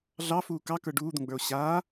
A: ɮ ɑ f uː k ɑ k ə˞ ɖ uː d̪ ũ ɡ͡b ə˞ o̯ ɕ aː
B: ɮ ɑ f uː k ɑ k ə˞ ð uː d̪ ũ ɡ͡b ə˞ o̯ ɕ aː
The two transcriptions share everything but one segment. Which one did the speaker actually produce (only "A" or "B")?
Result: A